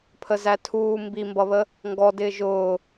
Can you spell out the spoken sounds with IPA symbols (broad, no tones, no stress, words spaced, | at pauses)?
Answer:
pʰəzætʰuː mbimbʌβə | ŋɡɔdɪː ʒʊː